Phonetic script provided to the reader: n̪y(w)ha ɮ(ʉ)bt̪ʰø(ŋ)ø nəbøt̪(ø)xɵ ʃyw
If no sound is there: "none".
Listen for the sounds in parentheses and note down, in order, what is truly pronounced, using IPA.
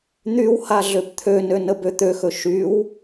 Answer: w, ø, n, ø

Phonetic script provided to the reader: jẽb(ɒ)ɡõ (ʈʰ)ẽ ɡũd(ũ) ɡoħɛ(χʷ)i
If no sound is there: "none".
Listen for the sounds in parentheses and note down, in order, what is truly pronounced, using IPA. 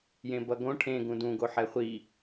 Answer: ʌ, ʈʰ, ũ, χʷ

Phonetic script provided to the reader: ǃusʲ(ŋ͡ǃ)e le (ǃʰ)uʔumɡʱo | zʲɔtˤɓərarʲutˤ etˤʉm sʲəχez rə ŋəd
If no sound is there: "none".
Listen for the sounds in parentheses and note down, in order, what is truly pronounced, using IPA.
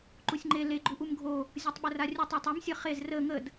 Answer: ŋ͡ǃ, ɡ͡ǃ

